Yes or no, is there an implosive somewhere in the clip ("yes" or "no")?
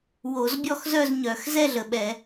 yes